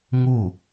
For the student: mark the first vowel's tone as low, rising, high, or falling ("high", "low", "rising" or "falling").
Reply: falling